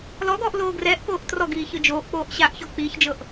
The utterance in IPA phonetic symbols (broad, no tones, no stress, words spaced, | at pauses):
lɔɡɔːʔ loːɡrɛːʔkoːʔ trɔɡiː çɯd͡ʒoːʔk͡poːʔ ɕaʔçɔ k͡piːçd͡ʒɤʔ